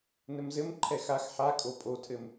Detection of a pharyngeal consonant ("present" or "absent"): present